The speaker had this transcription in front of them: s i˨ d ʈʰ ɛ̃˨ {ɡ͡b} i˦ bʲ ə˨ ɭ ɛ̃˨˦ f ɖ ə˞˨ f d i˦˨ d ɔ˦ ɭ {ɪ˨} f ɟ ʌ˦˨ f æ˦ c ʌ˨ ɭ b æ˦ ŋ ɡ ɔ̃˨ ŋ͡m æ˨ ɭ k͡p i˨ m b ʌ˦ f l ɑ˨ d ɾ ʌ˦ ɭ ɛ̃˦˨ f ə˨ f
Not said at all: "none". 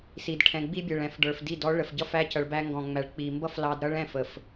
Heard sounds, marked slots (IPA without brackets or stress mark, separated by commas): ɡ͡b, ə˨